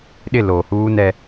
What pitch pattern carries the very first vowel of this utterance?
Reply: falling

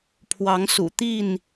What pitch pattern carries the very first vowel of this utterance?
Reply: rising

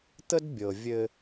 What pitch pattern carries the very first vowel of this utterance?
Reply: high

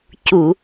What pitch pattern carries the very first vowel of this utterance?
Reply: low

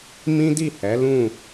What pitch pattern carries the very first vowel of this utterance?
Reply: high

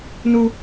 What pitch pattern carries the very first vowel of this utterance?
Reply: high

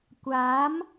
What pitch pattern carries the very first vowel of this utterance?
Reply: rising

